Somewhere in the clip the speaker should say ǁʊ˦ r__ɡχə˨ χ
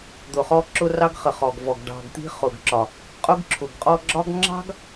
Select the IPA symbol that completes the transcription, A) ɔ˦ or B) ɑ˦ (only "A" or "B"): B